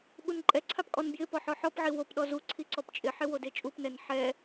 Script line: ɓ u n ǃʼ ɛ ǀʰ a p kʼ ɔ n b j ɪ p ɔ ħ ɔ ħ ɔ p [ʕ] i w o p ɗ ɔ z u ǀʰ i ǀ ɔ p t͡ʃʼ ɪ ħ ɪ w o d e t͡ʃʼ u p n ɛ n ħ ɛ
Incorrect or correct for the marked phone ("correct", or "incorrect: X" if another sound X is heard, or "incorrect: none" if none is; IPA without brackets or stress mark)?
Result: correct